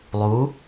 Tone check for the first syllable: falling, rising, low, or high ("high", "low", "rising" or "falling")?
rising